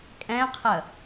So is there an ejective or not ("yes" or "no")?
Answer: yes